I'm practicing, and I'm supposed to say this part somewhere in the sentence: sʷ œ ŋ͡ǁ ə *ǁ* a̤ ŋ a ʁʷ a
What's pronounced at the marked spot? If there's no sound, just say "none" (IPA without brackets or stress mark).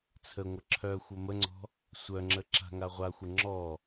ǁ